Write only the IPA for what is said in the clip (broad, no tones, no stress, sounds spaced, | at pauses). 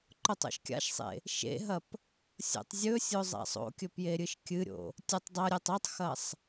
ǃ o tˤ o̰ ʃ kʲ a̰ ʃ sˤ ḛ | ʃ ḛ ɦ ɐ p | sʲ o̰ tˤ zʲ ɵ sʲ o zˤ a̰ sˤ o̰ kʲ ɵ p j e ɾʲ ɨ ʃ kʲ ɨ ɾʲ o̰ | tʲ ɵ tˤ dˤ ɐ ɾʲ e tˤ o tˤ x ɐ sˤ